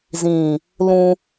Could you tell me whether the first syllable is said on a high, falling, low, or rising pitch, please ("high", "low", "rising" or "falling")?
low